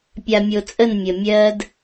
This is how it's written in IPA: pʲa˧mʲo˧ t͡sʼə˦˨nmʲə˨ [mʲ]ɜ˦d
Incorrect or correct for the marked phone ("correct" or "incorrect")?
correct